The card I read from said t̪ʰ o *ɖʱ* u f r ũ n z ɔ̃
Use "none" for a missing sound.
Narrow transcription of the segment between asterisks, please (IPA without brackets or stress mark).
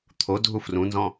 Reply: dʱ